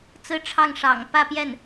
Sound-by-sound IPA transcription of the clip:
t͡s ɹ̩˥ ʈ͡ʂʰ ɑ˥˩ ŋ ʂ ɑ̰˨˩ ŋ p ä˥˧ p j ɛ˥˩ n

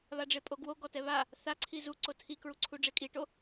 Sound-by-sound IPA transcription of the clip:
β a ɖ͡ʐ e pʼ o ɡ w o ɡ ɔ t ɛ β a | θ a ǀʰ i z u ǀ o tʰ i k ɹ u ǀʰ u ɖ͡ʐ e kʼ i ʈ o

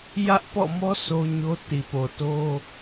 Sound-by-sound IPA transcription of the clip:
j ä˦ ʔ p ɔ̰˦˨ m ɔ˦ s o˦ ɲ o˦ t i˨ p o˨ t o˦

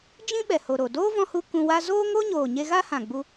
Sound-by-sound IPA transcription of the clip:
d͡ʒ ĩ˦ ɓ ɛ˨ h o˨ ɾ o˨ d oː˦ v ɔ̃˧ h u˧ k ũ˧ w a˦ z oː˦ ŋ o˦ ɲ oː˨ ɲ e˧ ɣ a˦ h ã˨ ɡ͡b u˧

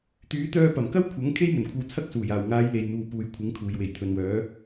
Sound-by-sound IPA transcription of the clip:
t̪ yː˨˥ t̪ œː˧ p ɐ˨˩ m k ɐ˥ w kʷʰ ɐ˨˥ ŋ kʰ e˥ j m ɵ˨˩ n kʷʰ ɐ˧ w t͡sʰ ɐ˥ k̚ s uː˨˩ j aː˨˩ w ŋ aː˨˧ j l e˨ j n̪ uː˨ p uː˨ j kʷʰ ɪ˨˥ ŋ kʰ uː˨ j w e˨˩ j t̪ʰ ɵ˨ n w œː˨˧

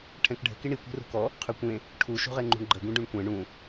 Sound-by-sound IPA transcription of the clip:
ʈʰ ɛ̃ k ɖʱ ə̤ k i ɳ i kʷ e̤ r ṳ k ɔ | qʰ y kʷ ẽ | ʈʰ u ʃ ṳ ʁ e ŋ͡ǃ ṳ ɳ ɡ͡ǃ ə ɡ ũ ɖ ũ ɳ kʷ ɛ̃ ɳ ũ

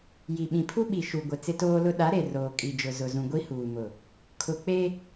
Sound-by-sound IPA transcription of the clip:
j i˨ ɓ ĩ˨ pʰ u˦ ɓ i˨ ʃ u˨ ɡʷ ɪ˨ t͡s ɪ˦ t oː˦ l ʊ˦ ɗ a˨˦ ɾ e˨ r oː˨ kʼ i˨ d͡ʒ ʊ˨ z ʊ˨ z ũ˨ ɡʷ i˦ h uː˨ m ʊ˨ | kʰ ʊ˨ k͡p e˦

